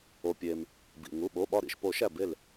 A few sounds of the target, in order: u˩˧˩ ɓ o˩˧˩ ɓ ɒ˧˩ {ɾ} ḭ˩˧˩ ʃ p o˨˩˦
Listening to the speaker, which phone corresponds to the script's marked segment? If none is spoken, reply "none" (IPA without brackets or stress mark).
ɾ